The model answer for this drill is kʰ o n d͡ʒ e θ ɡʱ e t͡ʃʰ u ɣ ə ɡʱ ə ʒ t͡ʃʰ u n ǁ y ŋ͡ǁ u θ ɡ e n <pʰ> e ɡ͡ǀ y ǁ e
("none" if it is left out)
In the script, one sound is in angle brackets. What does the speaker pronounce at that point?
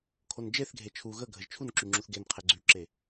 qʰ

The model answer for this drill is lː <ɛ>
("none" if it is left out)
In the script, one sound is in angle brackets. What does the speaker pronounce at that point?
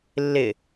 ɪ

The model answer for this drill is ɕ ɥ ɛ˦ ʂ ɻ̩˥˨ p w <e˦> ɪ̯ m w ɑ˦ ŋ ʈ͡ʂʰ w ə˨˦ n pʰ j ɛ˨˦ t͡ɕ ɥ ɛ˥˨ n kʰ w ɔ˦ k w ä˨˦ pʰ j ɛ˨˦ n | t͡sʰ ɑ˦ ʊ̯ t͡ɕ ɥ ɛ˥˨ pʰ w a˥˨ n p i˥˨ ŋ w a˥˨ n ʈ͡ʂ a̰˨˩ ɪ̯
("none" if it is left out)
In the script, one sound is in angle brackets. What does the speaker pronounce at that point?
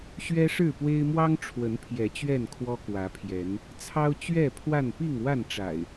e˦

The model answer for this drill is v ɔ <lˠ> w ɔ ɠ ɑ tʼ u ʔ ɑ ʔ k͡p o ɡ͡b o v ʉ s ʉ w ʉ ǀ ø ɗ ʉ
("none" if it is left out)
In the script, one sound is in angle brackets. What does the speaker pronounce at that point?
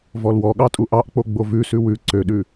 l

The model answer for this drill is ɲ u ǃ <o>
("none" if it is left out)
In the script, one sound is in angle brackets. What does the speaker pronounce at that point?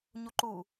u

